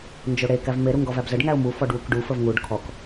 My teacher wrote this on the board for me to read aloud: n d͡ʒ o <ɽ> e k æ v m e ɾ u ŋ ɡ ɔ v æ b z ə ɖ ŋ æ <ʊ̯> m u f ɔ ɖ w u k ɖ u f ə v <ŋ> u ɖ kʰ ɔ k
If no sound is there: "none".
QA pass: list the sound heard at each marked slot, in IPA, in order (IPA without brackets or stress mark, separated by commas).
ɽ, ʊ̯, ŋ